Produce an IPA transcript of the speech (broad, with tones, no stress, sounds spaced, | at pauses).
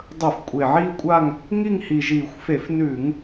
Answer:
dˤ ɵ˧˩˧ f kʷʼ e˨˩ ʕ iː˦˨ kʷʼ a˦˨ ŋ | ŋ i˦˨ ŋ h i˨˩ ʒ iː˧˩˧ xʷ f e˧˩˧ f n ʉː˧˩˧ ŋ